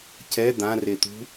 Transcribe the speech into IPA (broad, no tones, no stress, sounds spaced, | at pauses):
c ɛ d̪ ã r e t̪ ṳ